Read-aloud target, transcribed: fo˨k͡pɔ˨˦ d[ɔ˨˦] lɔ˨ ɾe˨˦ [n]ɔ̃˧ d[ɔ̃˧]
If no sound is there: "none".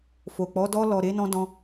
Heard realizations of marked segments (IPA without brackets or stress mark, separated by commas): ɔ˧, n, ɔ̃˧